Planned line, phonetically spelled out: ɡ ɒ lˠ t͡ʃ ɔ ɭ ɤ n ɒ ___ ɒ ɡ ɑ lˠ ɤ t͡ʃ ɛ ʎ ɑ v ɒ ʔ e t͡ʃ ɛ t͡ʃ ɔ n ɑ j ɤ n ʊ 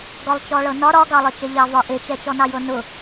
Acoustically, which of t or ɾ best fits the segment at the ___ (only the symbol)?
ɾ